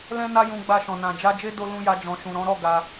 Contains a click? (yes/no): no